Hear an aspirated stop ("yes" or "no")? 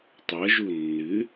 no